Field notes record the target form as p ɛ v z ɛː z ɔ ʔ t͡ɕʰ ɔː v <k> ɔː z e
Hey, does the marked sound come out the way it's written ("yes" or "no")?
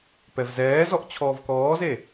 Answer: yes